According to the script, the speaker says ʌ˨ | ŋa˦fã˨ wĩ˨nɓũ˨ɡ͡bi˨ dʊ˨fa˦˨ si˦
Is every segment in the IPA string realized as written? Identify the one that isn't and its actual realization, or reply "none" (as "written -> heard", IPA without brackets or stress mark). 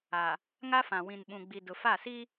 ʌ˨ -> a˨